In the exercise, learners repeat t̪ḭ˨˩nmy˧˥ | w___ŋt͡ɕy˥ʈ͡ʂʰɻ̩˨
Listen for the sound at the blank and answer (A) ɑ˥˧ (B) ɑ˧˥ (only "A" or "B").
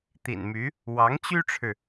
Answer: B